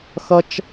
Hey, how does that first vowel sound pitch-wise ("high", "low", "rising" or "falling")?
high